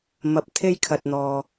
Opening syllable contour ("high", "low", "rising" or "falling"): low